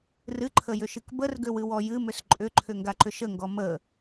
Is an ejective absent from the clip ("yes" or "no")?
no